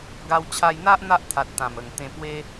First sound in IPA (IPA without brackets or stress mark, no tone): ɡ